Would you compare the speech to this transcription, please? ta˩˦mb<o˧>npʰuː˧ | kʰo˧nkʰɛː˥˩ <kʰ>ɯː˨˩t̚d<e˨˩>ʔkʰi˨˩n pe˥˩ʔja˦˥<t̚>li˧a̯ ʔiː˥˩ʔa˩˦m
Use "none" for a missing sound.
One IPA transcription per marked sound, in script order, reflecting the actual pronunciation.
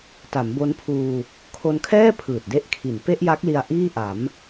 o˦˥, pʰ, e˥˩, k̚

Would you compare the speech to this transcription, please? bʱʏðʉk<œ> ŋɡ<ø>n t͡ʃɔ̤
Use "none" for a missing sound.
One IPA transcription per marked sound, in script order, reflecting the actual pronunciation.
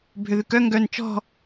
œ, œ

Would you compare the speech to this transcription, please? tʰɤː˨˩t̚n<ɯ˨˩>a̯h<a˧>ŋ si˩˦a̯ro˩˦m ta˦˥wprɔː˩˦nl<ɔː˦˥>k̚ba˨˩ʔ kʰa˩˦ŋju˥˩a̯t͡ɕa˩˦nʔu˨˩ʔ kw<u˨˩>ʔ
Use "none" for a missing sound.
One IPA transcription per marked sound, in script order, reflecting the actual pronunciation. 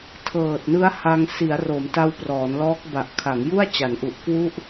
ɯ˦˥, a˧, ɔː˦˥, u˥˩

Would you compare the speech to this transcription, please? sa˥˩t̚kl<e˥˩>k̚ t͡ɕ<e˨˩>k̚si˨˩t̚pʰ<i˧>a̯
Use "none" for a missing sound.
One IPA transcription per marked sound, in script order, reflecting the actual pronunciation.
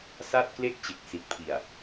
e˥˩, e˨˩, i˨˩

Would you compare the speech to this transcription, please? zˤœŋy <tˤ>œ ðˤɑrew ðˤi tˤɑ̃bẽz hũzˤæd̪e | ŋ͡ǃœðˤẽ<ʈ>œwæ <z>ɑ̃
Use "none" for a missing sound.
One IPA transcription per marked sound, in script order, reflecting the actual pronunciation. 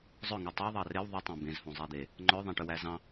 tˤ, ʈ, z

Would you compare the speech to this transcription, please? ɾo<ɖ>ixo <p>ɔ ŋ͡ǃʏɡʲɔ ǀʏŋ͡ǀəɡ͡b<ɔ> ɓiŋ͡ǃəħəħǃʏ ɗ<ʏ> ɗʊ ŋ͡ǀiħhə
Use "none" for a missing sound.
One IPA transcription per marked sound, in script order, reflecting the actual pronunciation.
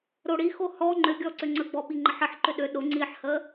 ɽ, h, ɔ, ʏ

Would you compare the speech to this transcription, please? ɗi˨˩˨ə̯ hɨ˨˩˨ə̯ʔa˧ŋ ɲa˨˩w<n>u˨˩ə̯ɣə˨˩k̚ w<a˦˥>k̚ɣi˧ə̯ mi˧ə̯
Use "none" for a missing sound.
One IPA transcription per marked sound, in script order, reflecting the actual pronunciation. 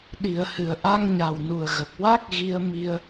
n, a˦˥

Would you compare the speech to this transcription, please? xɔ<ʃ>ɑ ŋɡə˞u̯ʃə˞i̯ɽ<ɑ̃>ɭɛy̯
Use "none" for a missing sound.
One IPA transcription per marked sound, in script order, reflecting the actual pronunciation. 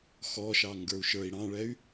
ʃ, ɑ̃

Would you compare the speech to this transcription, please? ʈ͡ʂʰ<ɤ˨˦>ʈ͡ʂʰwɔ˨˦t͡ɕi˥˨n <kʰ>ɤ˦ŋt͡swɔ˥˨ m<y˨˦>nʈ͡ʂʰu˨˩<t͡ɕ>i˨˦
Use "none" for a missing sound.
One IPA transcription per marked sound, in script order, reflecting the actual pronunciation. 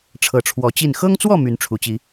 ɤ˨˦, x, y˨˦, t͡ɕ

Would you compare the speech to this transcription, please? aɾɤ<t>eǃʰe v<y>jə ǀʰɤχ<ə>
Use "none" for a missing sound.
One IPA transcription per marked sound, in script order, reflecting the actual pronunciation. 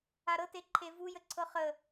t, u, ə

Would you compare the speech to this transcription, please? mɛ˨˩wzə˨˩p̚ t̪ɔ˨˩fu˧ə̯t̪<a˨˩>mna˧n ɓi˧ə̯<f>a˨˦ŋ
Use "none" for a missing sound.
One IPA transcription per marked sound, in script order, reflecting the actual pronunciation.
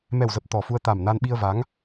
a˨˩, v

